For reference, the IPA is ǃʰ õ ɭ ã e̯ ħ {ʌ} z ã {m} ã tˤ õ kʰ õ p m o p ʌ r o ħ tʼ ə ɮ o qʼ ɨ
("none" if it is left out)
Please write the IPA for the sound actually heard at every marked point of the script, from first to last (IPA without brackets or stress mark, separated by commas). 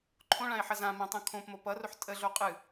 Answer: ʌ, m